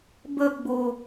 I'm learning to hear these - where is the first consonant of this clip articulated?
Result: lips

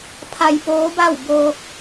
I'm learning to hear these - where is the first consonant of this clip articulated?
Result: lips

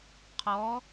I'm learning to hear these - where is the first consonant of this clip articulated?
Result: uvula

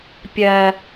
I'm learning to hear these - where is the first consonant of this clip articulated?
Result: lips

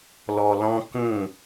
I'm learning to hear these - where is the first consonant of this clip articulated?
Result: tongue tip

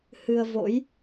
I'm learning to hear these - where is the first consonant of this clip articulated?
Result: throat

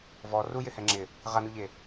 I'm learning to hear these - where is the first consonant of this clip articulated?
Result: lips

